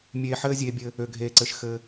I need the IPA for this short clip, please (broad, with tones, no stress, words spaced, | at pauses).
mʲeː˧ħɘː˦zʲeː˧ bʲɘ˧ | ø˨ɡʱeː˨ǀɘ˨ʃ xɘ˧